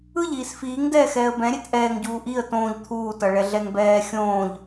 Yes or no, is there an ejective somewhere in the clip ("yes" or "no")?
no